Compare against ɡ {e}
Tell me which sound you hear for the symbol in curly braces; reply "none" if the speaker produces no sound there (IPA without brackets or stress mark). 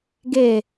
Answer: e